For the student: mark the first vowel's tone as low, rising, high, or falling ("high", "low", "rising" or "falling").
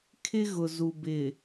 high